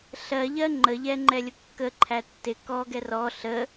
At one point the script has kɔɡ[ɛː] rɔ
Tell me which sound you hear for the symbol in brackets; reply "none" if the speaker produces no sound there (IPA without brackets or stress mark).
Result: ɛ